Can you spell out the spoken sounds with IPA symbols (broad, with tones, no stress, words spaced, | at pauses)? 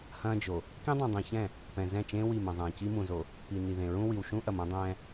hɐ̃ː˦d͡ʒo˨ | kĩ˦dˤũ˨dˤĩ˨çɛ̃˦˨ | pɛ̃˨zɛ̃˦˨t͡ʃẽː˦ wi˦˨mɐ̃˨zˤɛ̃ː˨ ci˦mũ˨zo˨ | pi˨ ni˨ðẽ˨ɹũ˦ wi˨wʃũ˦ʔɐ˨m õ˦dˤɛ̃ː˦